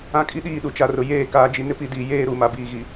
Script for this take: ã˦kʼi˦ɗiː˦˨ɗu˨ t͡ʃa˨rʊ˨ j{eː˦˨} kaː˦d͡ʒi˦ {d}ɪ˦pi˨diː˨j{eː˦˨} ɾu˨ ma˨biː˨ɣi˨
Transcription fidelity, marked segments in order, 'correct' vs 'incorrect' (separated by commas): correct, incorrect, correct